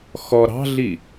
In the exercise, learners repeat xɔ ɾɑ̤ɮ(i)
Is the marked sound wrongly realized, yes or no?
no